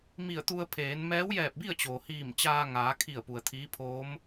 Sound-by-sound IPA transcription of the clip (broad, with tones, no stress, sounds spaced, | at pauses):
m i˧˩ ə̯ t̪ u˧ ə̯ pʰ eː˩˧ n m ɛː˧˥ w j ɛː˧˩ p̚ b i˥˨ ə̯ t͡ɕ oː˩ h iː˧˩ m t͡ɕ aː˧ ŋ aː˩˧ kʰ i˧˩ ə̯ p u˩ ə̯ t̪ʰ iː˧˥ pʰ oː˧˥ m